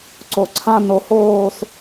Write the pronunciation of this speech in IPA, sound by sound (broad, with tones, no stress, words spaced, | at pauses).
ǀo˧˩ǀʰã˥˧no˧hoː˥˧s